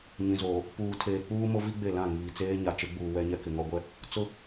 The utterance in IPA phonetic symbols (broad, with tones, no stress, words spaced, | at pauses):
ɲĩ˨zoː˨ | puː˨tʰeː˨k͡puː˦mo˦ vi˦ɡ͡be˦˨ lã˦˨ŋiː˨ t͡seː˦ ɲa˨t͡ʃɪ˨˦ɡ͡buː˨ wɛ˦ɲɛ˦ kɪ˨ŋɔ˦ ɡʷɛ˦ | t͡sʊ˦